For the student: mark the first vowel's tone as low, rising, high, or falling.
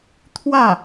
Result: falling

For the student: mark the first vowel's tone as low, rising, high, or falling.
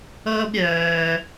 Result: high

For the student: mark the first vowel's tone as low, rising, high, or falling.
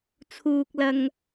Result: high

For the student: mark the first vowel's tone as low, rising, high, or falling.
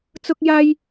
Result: high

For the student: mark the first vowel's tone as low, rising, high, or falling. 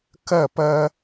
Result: falling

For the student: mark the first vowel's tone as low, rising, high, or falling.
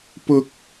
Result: high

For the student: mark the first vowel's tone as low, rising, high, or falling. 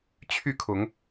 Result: falling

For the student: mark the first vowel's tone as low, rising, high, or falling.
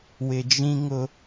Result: low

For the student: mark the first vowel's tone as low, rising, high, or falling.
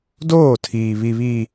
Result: falling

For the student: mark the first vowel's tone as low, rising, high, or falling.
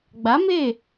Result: rising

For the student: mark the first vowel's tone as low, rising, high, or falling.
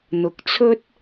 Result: low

